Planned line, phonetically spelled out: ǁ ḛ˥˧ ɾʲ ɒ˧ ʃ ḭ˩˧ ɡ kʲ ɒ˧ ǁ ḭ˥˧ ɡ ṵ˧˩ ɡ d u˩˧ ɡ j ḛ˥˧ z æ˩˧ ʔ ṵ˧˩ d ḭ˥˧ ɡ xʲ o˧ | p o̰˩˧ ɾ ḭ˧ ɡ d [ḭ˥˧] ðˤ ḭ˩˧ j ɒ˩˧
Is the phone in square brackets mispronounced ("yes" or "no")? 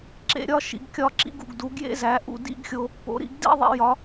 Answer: no